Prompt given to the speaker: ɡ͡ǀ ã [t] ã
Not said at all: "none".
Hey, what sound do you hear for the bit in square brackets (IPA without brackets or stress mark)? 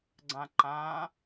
ǃ